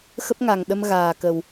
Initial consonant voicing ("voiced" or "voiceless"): voiceless